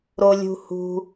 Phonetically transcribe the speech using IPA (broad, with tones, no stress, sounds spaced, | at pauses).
ɾ o˧ lʲ ṳ˧ h ṳ˧